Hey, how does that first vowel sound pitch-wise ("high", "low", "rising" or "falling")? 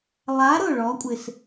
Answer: rising